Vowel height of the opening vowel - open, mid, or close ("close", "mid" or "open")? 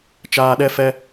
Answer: open